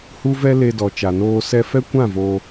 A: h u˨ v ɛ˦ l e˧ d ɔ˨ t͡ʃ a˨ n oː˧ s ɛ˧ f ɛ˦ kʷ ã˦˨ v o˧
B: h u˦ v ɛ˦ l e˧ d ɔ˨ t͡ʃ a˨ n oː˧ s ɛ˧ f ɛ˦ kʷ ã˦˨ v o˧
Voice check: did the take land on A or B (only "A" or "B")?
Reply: B